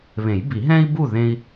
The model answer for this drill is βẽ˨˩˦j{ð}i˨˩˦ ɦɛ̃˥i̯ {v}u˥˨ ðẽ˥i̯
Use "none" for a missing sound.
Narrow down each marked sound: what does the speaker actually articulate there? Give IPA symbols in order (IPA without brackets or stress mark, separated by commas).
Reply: b, b